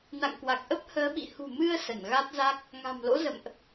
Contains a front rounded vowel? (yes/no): no